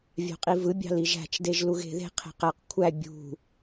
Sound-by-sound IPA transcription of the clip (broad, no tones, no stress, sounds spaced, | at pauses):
vʲ ɑ̤ qʼ i v ɯ bʲ ɑ̤ l i ʒ æ̤ t͡ʃ d e ʒ l u ɣ e̤ ð e̤ qʰ e̤ q æ q kʷʰ æ bʲ ṳ